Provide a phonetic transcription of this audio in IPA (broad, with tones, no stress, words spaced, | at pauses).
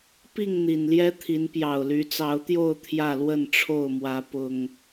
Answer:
pi˥˨ŋn̪i˨˩nljɛ˦t̪ʰi˨˦n pjɑ˨˩ʊ̯ly˨˦t͡sɑ˨˦ʊ̯t̪jo˥˨ʊ̯ t̪ʰjä˥˨lwə˥˨nʈ͡ʂʰo˥˨ʊ̯mwä˨˦ pʊ˨˩ŋ